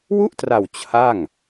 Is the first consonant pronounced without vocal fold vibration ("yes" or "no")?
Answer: no